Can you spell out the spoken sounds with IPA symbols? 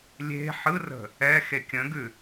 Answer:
lʲ e̤ ħ ɯ r ə̤ | ɛ x e kʲ ə̃ ɡ ʉ

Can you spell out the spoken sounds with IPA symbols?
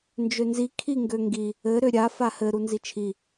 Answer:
n d͡ʒ ø n z i kʰ i ŋ ɡ ø ŋ ɡ i | ɘ ɾ ø ɾʲ a f a h ɘ ɾ u n z i t͡ʃʰ i

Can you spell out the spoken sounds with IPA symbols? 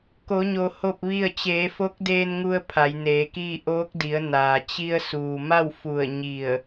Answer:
k o˩˧ ɲ o˩ h o˥˨ p̚ ʋ i˥˨ ə̯ t͡ɕ eː˩˧ f o˧˥ k̚ d eː˧ n ŋ u˧ ə̯ pʰ a˩˧ j n eː˩˧ k iː˥˨ ʔ oː˧˥ k̚ d i˩˧ ə̯ n aː˩ t͡ɕ i˧ ə̯ s uː˩ m a˥˨ w f u˧˩ ə̯ ɲ i˧˩ ə̯

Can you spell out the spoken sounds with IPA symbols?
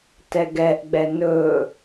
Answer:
t ɛ ɡ ɛ ʔ ɡ͡b ɛ n ɵ

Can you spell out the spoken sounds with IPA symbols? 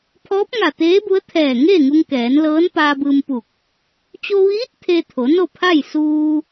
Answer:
pʰ ɔː˧˥ p̚ ŋ a˧˩ t̪ eː˧˥ b u˧˥ ə̯ t̪ʰ ɛː˧˩ ŋ eː˥˨ ŋ u˧ ŋ k ɛː˩˧ n l ɤː˧˥ n p aː˧ b ɯː˧ m p u˧˩ k̚ | t͡ɕ o˧ ʋ iː˧˥ t̚ t̪ʰ e˧ t̪ʰ o˩˧ n o˥˨ pʰ a˥˨ j s uː˧

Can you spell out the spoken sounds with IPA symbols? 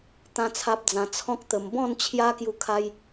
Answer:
t̪ ã˦ t͡sʰ a˦ p̚ d͡z ã˧ t͡sʰ ɔ̃˦ k̚ t̪ ə˧ m b ɔ̃˥˧ n t͡ɕʰ j a˦ k j u˦ kʰ a˦ j

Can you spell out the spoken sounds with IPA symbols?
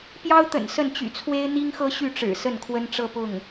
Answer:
p j ɑ˥ ʊ̯ t̪ ə̰˨˩ n s ə˥˩ n t͡ɕ y̰˨˩ t͡sʰ w e˥ ɪ̯ n̪ i˥ ŋ x ɤ˥ ɕ y˥˩ ʈ͡ʂ ɻ̩˨˩ s ə˥˩ n kʰ w ə˥ n ʈ͡ʂ ɤ˥˧ p ʊ˥˩ ŋ

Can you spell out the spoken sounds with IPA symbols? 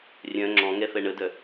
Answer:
rʲ œ̃ ŋ͡ǁ ɔ̃ ŋ ɛ f ɛ ɳ ə d œ

